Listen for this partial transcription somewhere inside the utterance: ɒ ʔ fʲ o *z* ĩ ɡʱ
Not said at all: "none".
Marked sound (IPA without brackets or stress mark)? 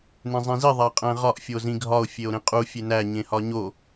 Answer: z